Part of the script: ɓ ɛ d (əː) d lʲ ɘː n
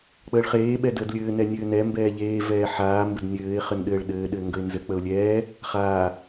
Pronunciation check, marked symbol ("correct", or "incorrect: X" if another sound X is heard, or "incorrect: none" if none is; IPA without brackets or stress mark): correct